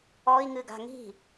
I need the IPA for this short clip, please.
ɔ i̯ ŋ ɨ ɡ a̤ ŋ i̤

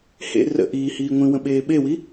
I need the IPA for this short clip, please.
h ḛ r ə̰ ʔ iː h iː ŋʷ ĩ w ə̃ ɓ eː ɓ e w i

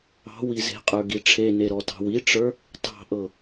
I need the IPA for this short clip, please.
ɑ̤ w i z e̤ qʼ ə˞ ɡ i ʈ͡ʂʰ e n e ɾ ɔ t ɑ̤ w i ʈ͡ʂ ə˞ | t ɑ̤ ʔ ɤ

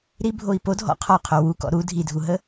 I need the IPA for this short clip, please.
ɾ i bʱ o i̯ p o dʱ ɔ̰ qʰ ɔ qʰ o w u k ɔ̰ ɾ u dʱ i dʱ u ɦ ə

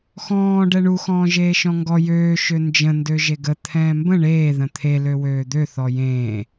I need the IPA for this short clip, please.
x ɔ̃ː ɖ ɛ ɳ u x ɔ̃ː ʒ eː ʃ ɔ̃ ŋ ɡ ɔ j øː ʃ ø n d͡ʒ ə̃ n d ø ʒ e ɡ ə t̪ʰ ɛ̃ː m b ə̃ ɳ eː ð ə̃ t̪ʰ e l ø w øː d̪ ø θ ɔ j ẽː

